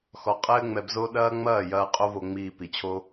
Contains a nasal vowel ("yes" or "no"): no